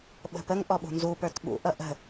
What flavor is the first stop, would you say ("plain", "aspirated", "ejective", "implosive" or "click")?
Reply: implosive